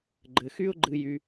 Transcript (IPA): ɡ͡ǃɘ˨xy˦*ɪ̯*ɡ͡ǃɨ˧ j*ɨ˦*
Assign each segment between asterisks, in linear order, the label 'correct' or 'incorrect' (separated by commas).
incorrect, incorrect